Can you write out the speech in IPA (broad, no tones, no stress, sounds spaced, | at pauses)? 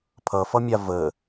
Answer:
pʰ ʌ f ʌ mʲ a v ə